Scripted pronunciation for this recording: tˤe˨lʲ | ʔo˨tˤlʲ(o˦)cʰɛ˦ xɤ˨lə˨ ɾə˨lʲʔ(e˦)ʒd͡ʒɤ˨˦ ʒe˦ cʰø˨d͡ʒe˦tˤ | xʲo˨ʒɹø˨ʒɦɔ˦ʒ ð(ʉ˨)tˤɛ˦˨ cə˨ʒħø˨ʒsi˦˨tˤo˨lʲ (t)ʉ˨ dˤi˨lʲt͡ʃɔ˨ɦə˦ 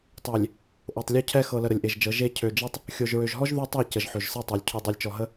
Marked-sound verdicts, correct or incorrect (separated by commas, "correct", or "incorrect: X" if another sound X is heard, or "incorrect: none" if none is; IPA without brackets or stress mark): correct, incorrect: e˨, incorrect: ʉ˦, incorrect: cʰ